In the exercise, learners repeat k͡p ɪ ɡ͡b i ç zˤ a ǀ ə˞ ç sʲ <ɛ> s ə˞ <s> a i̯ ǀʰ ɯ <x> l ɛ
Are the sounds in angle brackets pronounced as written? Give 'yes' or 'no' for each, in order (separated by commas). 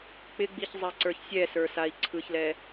yes, yes, no